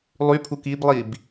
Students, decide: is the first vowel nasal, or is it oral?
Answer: oral